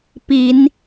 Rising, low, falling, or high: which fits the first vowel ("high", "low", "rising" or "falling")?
rising